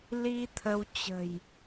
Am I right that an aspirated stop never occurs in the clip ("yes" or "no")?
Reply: no